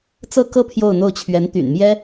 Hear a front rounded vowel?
yes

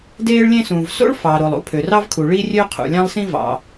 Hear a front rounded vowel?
yes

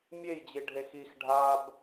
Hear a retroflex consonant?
yes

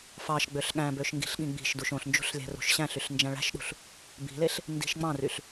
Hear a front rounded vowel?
yes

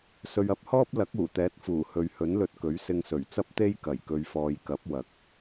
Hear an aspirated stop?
no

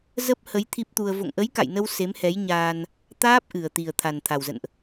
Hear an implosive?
no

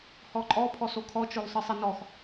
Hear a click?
yes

